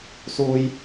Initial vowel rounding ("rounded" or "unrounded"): rounded